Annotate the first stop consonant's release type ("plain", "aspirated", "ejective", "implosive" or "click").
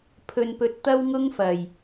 aspirated